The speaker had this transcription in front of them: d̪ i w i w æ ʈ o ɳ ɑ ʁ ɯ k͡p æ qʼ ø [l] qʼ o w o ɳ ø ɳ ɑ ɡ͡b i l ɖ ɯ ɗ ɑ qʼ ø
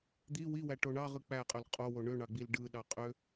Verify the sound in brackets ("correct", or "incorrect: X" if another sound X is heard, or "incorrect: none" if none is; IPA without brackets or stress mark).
correct